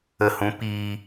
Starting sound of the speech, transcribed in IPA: ə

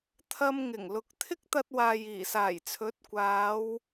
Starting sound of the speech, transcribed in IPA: t̪ʰ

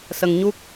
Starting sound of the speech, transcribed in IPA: s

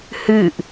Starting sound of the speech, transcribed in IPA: h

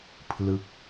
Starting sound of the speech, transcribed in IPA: pʰ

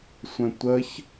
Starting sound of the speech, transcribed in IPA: sʷ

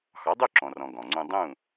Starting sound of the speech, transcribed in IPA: x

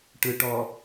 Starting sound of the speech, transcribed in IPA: ʈ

